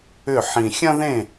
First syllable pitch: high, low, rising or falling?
falling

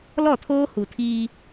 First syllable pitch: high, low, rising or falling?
falling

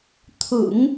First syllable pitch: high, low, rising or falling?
low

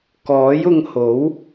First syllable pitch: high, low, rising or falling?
rising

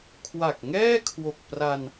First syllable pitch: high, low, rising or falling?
low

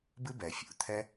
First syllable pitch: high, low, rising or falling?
high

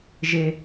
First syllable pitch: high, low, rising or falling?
high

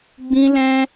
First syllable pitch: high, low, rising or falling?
high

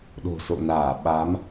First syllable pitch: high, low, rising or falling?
low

